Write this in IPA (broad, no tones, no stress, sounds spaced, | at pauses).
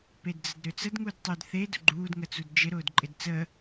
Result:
p e d d͡z ə d ɾ ø t͡s ə d ŋ u d tˤ ø d θ e d ʊ ɡ͡ǃ uː d ŋ ə t͡s u d d͡ʒ ɪ ɾ ʊː d ǃʼ ɪ d t͡s ə